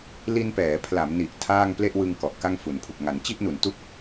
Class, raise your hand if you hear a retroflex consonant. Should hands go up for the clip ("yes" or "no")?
no